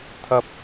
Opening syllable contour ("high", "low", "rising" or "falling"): high